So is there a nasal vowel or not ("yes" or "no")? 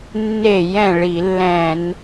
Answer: yes